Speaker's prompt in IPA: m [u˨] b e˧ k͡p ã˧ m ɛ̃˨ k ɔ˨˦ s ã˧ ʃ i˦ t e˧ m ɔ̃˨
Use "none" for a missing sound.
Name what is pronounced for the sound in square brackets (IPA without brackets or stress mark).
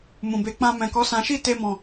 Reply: ũ˨